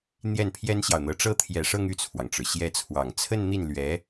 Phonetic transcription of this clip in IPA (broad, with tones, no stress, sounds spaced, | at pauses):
n̪ j ɛ˥˩ n pʰ j ɛ˥ n ɕ j ɑ˨ ʊ̯ n̪ ɤ˧˥ ʈ͡ʂ ɤ˥˩ t̪ʰ j ɛ˨˩ ʂ ɤ˥˧ ŋ y˥˩ t͡sʰ w ɑ˩ ŋ ʈ͡ʂ ɻ̩˩ ɕ j ɛ˧˥ t͡sʰ w ɑ˨˩ ŋ t͡sʰ ə˥˧ n n̪ i˥˩ n l ɥ ɛ˧˥